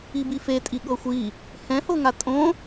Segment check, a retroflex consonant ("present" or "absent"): absent